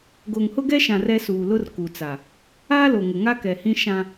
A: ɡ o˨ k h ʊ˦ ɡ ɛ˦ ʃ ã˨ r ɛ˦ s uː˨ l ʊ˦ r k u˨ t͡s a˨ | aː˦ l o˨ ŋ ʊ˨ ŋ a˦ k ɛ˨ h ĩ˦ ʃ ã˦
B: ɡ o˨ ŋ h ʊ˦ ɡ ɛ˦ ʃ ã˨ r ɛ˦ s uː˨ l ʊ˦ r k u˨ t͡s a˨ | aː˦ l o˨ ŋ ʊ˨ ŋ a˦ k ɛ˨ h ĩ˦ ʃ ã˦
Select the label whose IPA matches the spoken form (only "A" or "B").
B